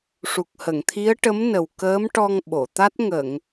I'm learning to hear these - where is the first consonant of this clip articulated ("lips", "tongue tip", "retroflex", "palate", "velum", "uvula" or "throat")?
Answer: retroflex